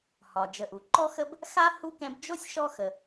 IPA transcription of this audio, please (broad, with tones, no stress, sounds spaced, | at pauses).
h ɒ˩ d͡ʒ ə˨ ʔ u˩ ǃ ɔ˥ x ə˥ b | x a˥ h u˥ k ɛ̃˦ b d͡ʒ o˥ sʲ ʃ ɔ˦ x ə˨